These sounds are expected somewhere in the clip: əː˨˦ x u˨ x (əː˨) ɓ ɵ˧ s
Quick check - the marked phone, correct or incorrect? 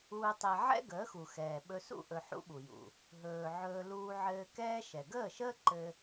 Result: incorrect